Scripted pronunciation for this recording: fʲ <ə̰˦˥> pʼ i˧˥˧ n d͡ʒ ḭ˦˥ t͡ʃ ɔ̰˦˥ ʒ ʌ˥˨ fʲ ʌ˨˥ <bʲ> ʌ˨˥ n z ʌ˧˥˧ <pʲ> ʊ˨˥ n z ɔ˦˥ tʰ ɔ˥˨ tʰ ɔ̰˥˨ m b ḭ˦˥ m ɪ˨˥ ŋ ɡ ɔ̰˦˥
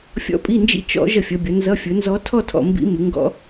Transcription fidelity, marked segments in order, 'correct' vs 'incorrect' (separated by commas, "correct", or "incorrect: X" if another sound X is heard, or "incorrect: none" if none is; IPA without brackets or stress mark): incorrect: ɔ̰˦˥, correct, incorrect: fʲ